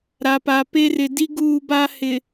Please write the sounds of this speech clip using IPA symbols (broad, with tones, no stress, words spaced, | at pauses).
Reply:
ɾa˨pa˨pe˦ rɪ˨di˦ ɡuː˦ba˦hɪ˨